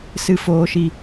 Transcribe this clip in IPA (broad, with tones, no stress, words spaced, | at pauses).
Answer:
sɨ˧foː˧ʃi˧